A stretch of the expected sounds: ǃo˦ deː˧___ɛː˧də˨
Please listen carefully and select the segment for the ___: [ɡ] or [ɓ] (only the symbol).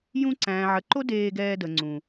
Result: ɡ